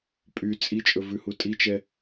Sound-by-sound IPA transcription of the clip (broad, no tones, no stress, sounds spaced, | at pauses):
pʼ y t͡sʼ i t͡ʃʼ ɵ v ʉ h u tʼ i t͡ʃ ɛ